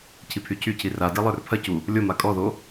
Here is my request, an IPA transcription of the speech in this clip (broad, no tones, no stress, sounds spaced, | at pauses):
cʰ i pʰ y cʰ y cʰ i r a d i lˠ ə˞ r pʰ ɐ c u | lʲ o m a kʼ ɔ ð o